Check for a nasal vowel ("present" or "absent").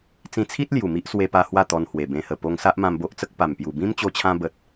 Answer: present